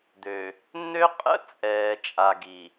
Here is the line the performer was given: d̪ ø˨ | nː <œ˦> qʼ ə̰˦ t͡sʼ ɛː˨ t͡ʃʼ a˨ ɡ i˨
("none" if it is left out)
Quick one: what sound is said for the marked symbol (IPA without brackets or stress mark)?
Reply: ø˦